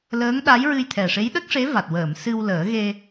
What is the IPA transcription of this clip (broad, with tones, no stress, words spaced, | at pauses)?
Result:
ləː˧˥ŋɗa˧˥jɹɨ˧jt̪ʰɛ˨˩ ʂe˧˥jɗə˦˥k̚ʂe˧˥va˨˩t̚ wəː˨˩˨m sɨ˧wləː˨˩˦ɣe˧